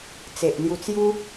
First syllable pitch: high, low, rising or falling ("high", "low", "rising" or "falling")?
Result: low